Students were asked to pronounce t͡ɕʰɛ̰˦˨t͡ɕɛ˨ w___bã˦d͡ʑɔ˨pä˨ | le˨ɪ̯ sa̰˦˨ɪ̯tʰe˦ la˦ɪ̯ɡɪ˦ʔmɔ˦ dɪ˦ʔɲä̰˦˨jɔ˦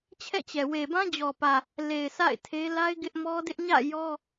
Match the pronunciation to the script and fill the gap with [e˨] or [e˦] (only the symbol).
e˨